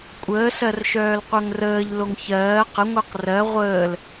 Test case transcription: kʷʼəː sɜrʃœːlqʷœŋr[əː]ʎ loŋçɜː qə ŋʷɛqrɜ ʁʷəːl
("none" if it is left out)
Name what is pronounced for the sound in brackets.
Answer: əː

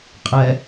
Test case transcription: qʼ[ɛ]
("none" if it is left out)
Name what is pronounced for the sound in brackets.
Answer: ɛ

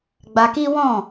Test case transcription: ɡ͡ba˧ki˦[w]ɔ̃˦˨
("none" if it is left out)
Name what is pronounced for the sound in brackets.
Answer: w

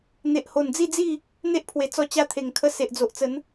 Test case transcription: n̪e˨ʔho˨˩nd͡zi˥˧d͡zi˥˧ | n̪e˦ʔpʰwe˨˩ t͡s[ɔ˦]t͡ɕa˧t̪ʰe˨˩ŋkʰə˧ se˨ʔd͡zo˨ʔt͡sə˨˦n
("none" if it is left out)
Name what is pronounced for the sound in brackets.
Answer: ɔ˧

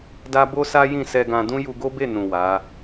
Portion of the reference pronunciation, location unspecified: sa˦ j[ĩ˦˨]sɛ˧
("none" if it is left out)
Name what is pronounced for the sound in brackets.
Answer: ĩ˦˨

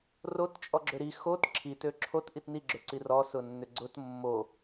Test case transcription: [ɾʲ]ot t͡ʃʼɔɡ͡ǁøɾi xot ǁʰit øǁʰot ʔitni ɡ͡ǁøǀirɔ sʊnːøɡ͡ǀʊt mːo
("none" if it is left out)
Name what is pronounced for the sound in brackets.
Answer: r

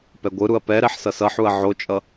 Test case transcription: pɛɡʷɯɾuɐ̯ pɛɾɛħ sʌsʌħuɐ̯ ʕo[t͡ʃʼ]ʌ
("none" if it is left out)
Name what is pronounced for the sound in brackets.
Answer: t͡ʃʼ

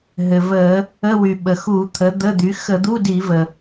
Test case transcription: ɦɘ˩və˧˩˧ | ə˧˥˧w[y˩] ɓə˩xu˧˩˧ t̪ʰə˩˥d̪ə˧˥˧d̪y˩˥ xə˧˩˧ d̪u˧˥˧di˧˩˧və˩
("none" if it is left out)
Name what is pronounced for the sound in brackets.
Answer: y˩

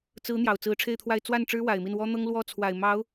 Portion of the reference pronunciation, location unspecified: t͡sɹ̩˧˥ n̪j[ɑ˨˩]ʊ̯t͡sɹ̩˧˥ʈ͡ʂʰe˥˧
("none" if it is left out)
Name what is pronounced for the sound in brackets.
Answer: ɑ˨˩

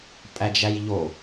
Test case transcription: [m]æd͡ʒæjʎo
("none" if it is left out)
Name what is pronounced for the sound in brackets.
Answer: pʼ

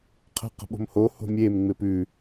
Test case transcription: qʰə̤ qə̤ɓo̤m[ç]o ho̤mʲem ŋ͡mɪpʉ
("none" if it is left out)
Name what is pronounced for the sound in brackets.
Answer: h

